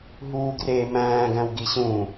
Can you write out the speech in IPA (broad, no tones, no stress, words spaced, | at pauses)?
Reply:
ɦuːɡreːmæ̃ː ɡæ̃wɡiɕũ